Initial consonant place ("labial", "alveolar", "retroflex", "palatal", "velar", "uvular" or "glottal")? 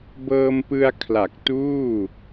labial